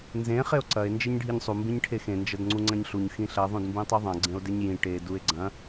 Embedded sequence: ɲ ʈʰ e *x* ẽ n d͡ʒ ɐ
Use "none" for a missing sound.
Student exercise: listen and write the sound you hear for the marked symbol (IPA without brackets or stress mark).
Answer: x